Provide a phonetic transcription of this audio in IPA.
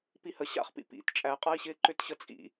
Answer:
p i h ə ɕ a̰ χ p ḭ p ḭ t t͡ʃʼ æ qʼ a i̯ ɕ ɪː ǃ ʏ t ɕ ə t͡sʼ ḭ

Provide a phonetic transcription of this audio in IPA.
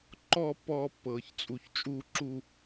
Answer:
ǃ ɔ˥˧ pː ɔː˧ pː ɤː˧˩ ç t͡sʼ u˧˩ ç t͡ʃʼ uː˥˧ ǁ u˥˧

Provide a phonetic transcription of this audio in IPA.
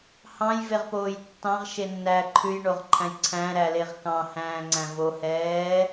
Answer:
h ɑ̃ j v e ʁ p oː j tː ɑ̃ ʁ ʃ e nː æː ǃʰ ʉ j ɳ o ʁ ǃʰ æ̃ j ǀʰ æ̃ ɾ æ l e ʁ k ɑ̃ h æ̃ː ŋ͡ǀ æ̃ v o h ɛː

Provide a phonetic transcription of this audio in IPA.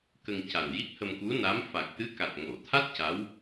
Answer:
k ə˧ ŋ c a˨˩ n j i˦˥ k̚ h ə˧ m k u˧˥ n a˧˥ m f a˨˩ k̚ t̪ ɨ˧˥ k a˨˩ t̚ ŋ o˨˩˨ t̪ʰ a˦˥ t̚ c a˧˥ w

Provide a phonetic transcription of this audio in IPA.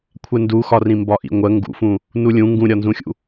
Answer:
kʷʰ ɛ n d u x ɒ r ĩ m b ɒ ʔ ḭ ŋʷ ɜ ŋ ɡ ṵ f ũ | n u lʲ ũ ŋ ɡ ũ ɾʲ ɒ n z ũ xʲ ṵ

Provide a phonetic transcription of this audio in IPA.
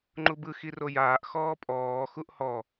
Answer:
ŋ͡ǃ u b ɯ x i r o j aː ʔ x ɔː pʼ ɔː x u ʔ h ɔ

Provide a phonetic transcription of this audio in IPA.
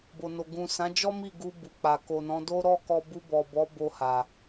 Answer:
b o˨ n o˨ ɡ ũ˨ s ã˨˦ d͡ʒ ɔ˦ m i˦˨ ɡ u˧ b u˨ k͡p a˨ k o˨ n ɔ̃˨˦ d o˦ ɾ ɔ˦˨ k ɔ˧ b u˧ b ɔ˨ b ɔ˨˦ b o˧ h a˨

